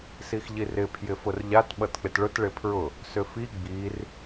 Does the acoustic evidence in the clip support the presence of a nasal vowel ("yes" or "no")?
no